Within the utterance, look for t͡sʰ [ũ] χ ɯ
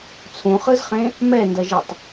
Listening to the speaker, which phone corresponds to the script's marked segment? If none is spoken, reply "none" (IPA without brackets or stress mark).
ũ